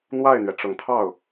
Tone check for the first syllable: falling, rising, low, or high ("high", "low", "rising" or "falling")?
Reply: falling